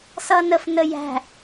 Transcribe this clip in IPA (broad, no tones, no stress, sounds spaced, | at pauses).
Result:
s ʌ n ə f n ə j æ̤